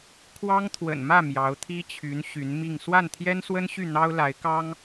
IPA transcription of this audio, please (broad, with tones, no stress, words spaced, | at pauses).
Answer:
kʰwɑ˥ŋ t̪ʰwə̰˨˩nmä˥˩ mjɑ˧˥ʊ̯t̪ʰi˥t͡ɕʰy˧˥n ɕy˧˥nmi˥˧ŋ swa˥˩nt̪ʰjɛ˥nswə˥nɕy˥˩ n̪ɑ˥ʊ̯la˧˥ɪ̯kɑ˥ŋ